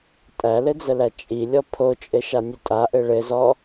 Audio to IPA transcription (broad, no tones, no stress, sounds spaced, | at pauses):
tʼ æ l ɘ d͡z ə l æ t͡ʃʼ i lʲ ɔ pʰ o t͡ʃʼ ɘ ʃ a nʲ ɘ tʼ a ʔ ɘ ɭ ɘ z ɔ